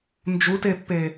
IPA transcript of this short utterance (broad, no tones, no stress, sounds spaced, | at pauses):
n d͡ʒ u t e pː e